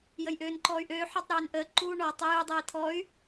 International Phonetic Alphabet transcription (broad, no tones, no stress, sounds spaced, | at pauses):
j ə j ʔ øː n ǃ ɔː y̯ ʔ øː ħ ɔ tˤ ɾ øː n ʔ əː ǃ uː ɳ ɔ tˤ ø j u dˤ əː i̯ t̪ʰ ɔ y̯